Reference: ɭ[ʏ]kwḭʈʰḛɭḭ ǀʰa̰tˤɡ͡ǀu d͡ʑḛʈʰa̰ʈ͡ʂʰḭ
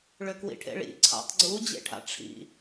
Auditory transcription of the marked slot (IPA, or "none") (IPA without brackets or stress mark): ʏ